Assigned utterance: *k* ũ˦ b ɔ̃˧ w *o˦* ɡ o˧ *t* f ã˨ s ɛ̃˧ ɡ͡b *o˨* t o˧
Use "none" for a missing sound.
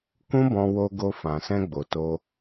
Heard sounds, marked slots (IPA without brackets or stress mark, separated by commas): k, o˧, none, o˨